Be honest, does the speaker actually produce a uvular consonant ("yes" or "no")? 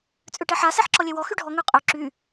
yes